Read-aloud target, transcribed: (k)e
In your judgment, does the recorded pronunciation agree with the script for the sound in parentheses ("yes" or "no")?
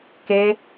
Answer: yes